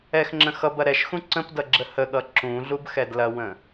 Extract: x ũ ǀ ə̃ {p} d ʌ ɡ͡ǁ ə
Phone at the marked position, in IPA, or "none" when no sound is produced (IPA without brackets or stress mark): p